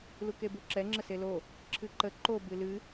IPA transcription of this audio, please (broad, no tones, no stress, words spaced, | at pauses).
lukebuǁɛ ŋ͡ǁəselo | ǁʰɨǃə ǃo bɨlɨ